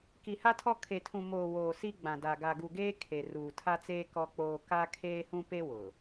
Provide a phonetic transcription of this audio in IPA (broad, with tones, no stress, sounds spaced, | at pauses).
k i˨ h a˦ tʰ ɔ˦ kʰ e˨ tʰ ũ˨ m oː˨ w oː˨ s i˦ ɡ͡b ã˨ d a˨ ɡ a˨ ɡ u˨ ɡ eː˦ kʰ e˨ r uː˨ tʰ a˦ t͡s eː˦ k ɔ˦ k͡p oː˦ k a˦ kʰ eː˦ h ũ˦ p e˦ w ʊ˨